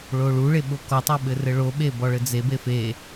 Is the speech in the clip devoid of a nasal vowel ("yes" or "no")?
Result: yes